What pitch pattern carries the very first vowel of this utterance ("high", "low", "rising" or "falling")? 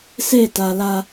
falling